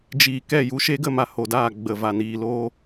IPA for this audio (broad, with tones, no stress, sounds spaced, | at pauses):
d͡ʒ iː˨ k ɛ˦˨ j u˧ ʃ e˦ ɡ ə˧ m a˨ h o˨ d aː˦˨ ɡ͡b ə˨ v a˨ n iː˨ l oː˦